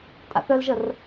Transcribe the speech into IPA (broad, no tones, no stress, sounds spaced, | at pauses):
tʼ a̰ θ œ l ʒ ə r